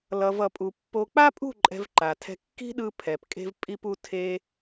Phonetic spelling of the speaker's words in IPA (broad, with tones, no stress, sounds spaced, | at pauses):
l ʌ˨ v ʌ˨ pʼ u˨ pː o˧ k͡p a˦ pʼ ṳ˦˨ ǃʼ ɛ̤˧ v ǃ a˨ tʰ ɛ̤˧ kː i̤˦ ɗ ɯ˧ pʰ ɛ˨ p kʼ e̤˦ v pʼ i˧ p u˧ tʰ e˧